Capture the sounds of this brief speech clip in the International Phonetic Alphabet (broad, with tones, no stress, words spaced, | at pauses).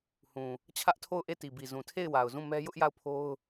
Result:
hũ˨ | t͡ɕʰä˦ʔtʰo˦˨ʊ̯ʔe˦˨ti˨ bi˨zũ˨tʰe˦˨ɪ̯ wa˨ʊ̯zũ˦˨ mɛ˦ jʊ˦ʔja˦˨ʊ̯pʰo˦ʊ̯